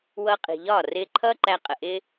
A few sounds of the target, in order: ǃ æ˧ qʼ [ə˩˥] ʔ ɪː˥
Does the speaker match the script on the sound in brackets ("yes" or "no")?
no